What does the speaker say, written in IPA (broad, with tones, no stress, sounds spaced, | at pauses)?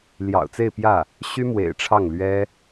l j ɑ̰˨˩ ʊ̯ t͡s e˥˧ ɪ̯ p j ä˥˩ | ɕ y˥ m w ḛ˨˩ ɪ̯ ʈ͡ʂʰ ɑ˥˩ ŋ l ɥ ɛ˥